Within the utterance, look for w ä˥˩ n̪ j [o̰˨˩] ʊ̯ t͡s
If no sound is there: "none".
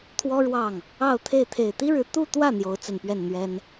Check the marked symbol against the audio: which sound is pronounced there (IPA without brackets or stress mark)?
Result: o˧˥